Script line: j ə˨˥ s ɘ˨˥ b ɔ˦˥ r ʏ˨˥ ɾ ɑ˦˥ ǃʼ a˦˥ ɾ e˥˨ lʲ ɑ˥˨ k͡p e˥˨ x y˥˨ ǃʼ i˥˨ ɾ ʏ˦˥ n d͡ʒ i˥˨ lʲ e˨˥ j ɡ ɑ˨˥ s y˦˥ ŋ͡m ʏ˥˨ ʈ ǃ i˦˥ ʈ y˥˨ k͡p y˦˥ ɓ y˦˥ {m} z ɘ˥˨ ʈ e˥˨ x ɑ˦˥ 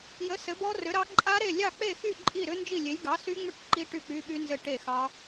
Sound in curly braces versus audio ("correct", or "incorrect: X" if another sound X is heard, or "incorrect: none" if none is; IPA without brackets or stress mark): incorrect: n